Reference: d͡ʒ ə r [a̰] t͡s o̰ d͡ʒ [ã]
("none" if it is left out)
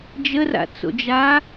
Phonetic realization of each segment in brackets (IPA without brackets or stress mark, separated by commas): a̰, a